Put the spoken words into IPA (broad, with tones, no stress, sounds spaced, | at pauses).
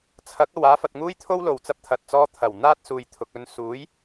t͡sʰ ɐ˨˥ k̚ ɐ˨ w aː˨˧ f ɐ˨ t̚ ŋ uː˥ j t̪ʰ o˥ w l o˨ w t͡s ɐ˧ p̚ t̪ʰ ɐ˨ t̚ t͡s ɔː˧ t̪ʰ ɐ˨˩ w n̪ aː˥ t̚ s uː˨ j t̪ʰ ʊ˨ k̚ ɵ˧ n s uː˨˥ j